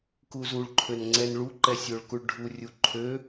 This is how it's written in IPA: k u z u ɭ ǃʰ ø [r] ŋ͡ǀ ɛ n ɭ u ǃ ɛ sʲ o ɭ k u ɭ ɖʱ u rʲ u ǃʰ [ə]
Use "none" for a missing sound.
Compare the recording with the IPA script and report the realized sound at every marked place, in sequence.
n, ø

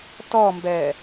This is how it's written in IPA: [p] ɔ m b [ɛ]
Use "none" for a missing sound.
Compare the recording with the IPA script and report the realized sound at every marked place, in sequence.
t, ɛ

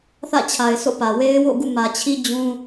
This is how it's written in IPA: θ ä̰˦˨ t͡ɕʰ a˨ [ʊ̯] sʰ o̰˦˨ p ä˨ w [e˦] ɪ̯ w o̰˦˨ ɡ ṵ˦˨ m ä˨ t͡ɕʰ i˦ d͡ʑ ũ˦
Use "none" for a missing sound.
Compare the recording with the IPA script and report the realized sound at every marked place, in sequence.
ɪ̯, e˦

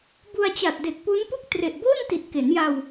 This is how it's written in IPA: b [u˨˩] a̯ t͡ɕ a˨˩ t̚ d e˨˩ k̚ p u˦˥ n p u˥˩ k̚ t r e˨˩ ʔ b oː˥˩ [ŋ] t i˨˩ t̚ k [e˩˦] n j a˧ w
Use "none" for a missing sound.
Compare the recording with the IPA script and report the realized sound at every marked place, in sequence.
u˧, n, e˩˦

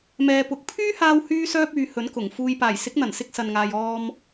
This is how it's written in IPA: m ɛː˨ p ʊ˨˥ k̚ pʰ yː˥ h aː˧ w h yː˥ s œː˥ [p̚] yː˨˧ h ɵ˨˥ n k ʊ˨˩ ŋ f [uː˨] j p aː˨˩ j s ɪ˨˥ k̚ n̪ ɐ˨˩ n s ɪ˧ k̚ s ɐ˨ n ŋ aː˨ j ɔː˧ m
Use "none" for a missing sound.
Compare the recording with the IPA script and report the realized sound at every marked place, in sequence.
p̚, uː˨

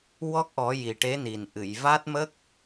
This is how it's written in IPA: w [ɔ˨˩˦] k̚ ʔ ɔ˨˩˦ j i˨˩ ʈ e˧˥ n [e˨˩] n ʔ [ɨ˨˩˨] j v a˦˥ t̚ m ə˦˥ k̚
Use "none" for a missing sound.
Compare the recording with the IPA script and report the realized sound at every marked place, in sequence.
ɔ˦˥, i˨˩, ɨ˨˩˨

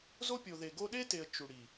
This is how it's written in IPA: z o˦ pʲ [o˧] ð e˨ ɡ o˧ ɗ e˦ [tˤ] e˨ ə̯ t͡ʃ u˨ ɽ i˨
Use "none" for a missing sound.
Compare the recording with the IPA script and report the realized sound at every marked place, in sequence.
o˨, t

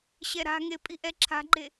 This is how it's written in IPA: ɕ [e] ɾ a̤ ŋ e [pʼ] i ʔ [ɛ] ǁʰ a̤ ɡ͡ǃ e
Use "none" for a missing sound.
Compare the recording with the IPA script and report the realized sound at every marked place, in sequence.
ɛ, pʼ, ɛ

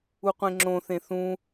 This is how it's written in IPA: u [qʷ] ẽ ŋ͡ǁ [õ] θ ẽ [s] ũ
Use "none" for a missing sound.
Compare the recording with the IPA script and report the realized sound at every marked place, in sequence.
qʷ, õ, θ

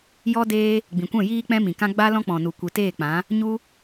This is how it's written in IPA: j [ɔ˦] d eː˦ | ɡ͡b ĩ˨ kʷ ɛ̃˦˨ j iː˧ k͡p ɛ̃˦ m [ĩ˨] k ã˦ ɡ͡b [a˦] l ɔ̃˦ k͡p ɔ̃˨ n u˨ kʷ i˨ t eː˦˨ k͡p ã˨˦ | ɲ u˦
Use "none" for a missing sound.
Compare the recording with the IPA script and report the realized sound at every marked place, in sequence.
ɔ˦, ĩ˨, a˦

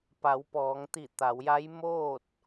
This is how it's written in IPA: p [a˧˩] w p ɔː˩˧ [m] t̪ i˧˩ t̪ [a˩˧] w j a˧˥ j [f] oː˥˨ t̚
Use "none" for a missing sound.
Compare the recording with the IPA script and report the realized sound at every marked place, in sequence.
a˩˧, ŋ, a˩˧, m

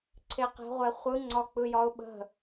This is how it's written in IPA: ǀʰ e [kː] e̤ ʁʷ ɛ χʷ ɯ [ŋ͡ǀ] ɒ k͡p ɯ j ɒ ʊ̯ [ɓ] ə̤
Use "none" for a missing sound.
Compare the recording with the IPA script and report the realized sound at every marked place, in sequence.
q, ŋ͡ǀ, ɓ

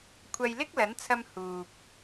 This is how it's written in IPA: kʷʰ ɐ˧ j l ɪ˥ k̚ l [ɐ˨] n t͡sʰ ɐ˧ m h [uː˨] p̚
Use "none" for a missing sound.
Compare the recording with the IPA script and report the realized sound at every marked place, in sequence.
ɐ˨˥, uː˨

